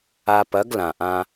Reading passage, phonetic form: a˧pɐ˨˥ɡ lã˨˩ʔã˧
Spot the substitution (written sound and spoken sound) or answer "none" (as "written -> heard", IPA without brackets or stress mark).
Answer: none